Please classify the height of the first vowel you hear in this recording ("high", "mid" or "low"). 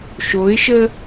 mid